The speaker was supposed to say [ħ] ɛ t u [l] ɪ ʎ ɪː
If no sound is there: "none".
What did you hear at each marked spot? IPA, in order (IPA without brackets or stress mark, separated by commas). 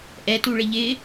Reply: ʔ, ɭ